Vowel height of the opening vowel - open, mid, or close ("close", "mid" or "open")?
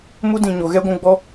close